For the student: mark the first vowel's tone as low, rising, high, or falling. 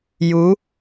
rising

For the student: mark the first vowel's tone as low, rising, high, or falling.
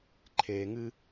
low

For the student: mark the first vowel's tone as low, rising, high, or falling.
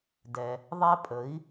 low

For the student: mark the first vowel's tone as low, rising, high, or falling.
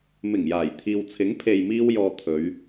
low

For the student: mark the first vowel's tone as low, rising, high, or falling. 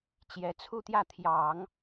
rising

